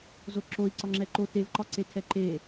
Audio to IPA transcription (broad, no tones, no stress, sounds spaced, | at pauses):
z o ǁ o i̯ ǀ ɒ ŋ͡ǁ ɛ ǃ o t e v ǃ ɒ ǀ e tʰ ɛ ǃ e